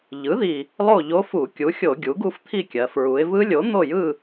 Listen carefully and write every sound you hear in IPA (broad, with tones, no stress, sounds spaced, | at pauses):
ʎ ɯ˩˥ ð i˨˩ | lˠ o˥˨ ʎ o˦˥ f u˧˩˧ kʲ u˩˥ xʲ o˧˩˧ ɡʲ u˩˥ ɡ u˦˥ f t̪ʰ i˥˨ kʲ ɜ˩˧ f ɹ u˩˧ ɪ̯ v ɯ˦˥ lʲ o˩˥ n̪ o˥˨ j ɯ˥˨